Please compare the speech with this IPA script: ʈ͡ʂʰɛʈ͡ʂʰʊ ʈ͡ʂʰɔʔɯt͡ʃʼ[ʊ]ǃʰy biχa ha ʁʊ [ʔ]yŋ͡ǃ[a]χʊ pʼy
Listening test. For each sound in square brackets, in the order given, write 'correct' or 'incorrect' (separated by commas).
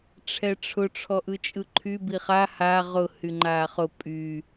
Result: incorrect, incorrect, incorrect